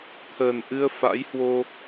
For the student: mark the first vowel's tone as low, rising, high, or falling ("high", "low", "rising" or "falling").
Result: low